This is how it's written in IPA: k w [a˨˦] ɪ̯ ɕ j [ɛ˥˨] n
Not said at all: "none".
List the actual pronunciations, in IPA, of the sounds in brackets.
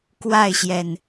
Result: a˥˨, ɛ˨˩

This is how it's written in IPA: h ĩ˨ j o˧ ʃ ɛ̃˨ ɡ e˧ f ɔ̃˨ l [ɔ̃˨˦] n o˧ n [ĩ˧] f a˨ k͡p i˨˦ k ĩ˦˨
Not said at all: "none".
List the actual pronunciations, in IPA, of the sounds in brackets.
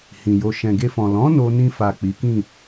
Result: ɔ̃˨˦, ĩ˧

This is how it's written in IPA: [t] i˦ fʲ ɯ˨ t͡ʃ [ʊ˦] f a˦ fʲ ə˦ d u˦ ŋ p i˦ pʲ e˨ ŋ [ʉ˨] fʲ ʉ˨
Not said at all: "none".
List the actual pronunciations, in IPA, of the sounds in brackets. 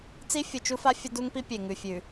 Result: t͡s, u˦, ʉ˨

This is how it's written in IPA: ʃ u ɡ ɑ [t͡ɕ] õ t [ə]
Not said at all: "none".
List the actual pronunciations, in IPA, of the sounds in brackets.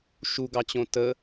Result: t͡ɕ, ə

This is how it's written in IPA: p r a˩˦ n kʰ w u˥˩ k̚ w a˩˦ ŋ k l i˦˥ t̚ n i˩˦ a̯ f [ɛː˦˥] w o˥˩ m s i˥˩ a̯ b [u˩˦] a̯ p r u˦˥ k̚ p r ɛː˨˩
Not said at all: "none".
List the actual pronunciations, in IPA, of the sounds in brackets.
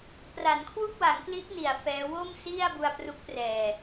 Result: ɛː˦˥, u˧

